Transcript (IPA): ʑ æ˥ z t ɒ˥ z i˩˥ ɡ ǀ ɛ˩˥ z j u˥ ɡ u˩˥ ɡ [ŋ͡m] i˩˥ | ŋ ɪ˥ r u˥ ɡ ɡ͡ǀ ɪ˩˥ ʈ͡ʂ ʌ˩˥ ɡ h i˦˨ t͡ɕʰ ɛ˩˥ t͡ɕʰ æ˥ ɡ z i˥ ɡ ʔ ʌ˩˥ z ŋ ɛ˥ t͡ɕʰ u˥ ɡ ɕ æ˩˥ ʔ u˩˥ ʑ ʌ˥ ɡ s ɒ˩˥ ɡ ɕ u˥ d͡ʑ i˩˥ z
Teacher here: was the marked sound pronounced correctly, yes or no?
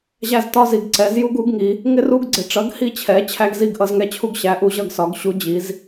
no